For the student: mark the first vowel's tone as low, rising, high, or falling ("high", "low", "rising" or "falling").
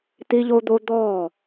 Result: high